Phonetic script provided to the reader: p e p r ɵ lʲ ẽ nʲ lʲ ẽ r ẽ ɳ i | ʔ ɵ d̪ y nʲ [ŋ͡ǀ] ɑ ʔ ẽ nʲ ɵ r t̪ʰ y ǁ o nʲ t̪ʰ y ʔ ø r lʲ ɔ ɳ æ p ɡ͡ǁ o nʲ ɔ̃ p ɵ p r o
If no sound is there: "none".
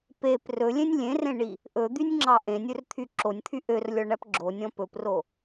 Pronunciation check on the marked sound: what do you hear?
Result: ŋ͡ǁ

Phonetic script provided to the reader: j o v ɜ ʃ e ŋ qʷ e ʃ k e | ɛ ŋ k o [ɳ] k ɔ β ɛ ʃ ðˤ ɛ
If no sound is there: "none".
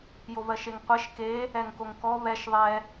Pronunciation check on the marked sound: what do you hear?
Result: ŋ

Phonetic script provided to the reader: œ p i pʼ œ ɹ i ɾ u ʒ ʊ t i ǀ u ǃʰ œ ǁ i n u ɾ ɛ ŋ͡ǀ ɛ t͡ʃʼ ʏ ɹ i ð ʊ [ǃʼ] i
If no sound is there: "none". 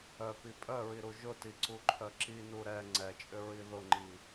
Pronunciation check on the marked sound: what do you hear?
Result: ŋ͡ǃ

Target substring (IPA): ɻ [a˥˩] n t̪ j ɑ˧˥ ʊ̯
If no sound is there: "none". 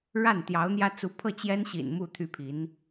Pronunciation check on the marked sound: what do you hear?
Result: a˥˩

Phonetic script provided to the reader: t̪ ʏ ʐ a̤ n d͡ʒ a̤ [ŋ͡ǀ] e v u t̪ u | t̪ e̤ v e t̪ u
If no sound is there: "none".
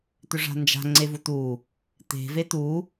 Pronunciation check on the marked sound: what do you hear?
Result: ŋ͡ǀ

